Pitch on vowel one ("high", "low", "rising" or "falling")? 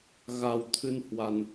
low